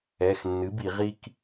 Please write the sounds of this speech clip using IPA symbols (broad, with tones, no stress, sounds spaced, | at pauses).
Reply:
ɛ˩˧˩ x nː ɨ˩˥ b i˧˩˧ ʁ i˦ k